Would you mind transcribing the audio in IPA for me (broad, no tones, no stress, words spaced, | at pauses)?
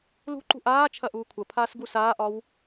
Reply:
lṳǃṳ ʔaː t͡ʃʰɐʔuːkʷʰɐpʰaːs ɡusaːʔɒw